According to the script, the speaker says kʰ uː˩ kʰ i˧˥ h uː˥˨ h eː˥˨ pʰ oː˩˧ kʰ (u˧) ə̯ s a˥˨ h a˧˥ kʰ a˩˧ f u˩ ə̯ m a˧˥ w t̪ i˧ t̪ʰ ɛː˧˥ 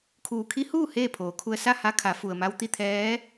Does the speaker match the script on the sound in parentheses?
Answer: yes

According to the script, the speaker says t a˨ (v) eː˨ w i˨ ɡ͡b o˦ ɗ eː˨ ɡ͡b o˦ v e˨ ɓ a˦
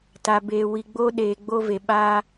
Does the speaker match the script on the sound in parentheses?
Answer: no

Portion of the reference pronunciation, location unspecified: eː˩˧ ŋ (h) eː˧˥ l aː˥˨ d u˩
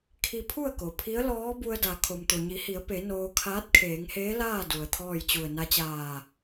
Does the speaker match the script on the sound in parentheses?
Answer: yes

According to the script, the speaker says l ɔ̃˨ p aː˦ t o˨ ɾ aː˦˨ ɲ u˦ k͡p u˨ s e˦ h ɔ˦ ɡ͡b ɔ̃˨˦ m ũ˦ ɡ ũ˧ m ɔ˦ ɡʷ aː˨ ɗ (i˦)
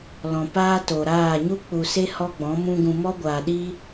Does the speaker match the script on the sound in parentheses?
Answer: yes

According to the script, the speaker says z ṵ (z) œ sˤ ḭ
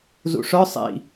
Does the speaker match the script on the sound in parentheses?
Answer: no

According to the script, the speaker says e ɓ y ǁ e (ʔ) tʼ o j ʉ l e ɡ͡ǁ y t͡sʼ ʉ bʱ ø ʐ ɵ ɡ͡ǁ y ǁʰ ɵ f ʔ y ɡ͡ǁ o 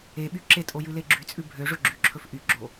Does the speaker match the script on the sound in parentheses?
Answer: no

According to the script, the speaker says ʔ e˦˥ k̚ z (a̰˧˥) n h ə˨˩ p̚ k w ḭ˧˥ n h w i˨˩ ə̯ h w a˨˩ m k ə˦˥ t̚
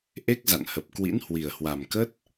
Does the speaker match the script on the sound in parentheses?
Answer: no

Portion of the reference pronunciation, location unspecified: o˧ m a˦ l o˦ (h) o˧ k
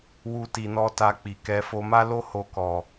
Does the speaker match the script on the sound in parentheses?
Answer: yes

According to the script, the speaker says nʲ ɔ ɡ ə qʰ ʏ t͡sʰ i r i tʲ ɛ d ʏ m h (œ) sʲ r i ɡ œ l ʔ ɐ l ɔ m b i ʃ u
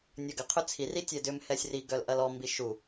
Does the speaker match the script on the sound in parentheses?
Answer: no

